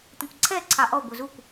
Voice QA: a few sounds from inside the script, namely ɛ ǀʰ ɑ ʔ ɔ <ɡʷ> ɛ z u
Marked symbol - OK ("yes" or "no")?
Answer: yes